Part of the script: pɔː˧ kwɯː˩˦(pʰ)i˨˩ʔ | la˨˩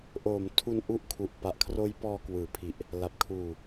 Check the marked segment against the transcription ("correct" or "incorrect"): correct